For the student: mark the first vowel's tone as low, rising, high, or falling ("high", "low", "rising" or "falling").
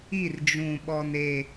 falling